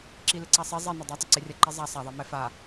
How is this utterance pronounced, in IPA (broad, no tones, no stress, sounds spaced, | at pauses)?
ǁ i l ɪ ǀ a sˤ e zˤ e n a dˤ a tˤ ə ǀ e rʲ a ǃ i zˤ a sˤ a ðˤ ɛ m ɛ f a